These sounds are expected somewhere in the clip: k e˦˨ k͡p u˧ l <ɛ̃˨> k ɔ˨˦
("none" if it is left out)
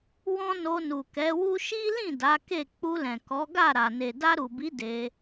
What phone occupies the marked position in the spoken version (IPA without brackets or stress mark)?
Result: ɛ̃˨